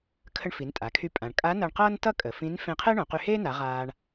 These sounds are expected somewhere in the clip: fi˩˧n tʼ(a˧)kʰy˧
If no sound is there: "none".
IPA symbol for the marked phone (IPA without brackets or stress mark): a˩˧